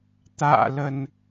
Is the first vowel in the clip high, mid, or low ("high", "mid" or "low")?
low